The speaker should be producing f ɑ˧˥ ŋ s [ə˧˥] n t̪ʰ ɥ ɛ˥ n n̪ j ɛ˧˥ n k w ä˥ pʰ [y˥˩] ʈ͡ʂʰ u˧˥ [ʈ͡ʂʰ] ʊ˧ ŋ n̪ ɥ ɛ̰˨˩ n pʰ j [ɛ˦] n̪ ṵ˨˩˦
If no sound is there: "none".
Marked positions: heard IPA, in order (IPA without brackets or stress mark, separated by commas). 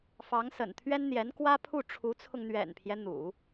ə̰˨˩, u˥˩, t͡sʰ, ɛ˦